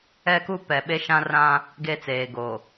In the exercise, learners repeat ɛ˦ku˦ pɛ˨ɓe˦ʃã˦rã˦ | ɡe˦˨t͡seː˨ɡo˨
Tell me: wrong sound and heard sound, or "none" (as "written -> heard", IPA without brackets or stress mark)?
none